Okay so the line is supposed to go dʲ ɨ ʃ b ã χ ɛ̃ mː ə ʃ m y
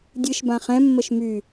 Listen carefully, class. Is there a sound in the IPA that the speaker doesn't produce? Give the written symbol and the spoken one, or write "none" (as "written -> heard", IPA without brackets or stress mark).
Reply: none